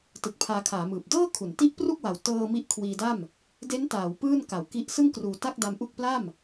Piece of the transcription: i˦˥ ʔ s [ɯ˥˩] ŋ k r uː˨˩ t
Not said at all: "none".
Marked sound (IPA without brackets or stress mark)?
ɯ˥˩